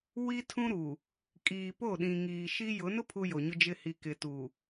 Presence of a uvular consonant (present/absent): absent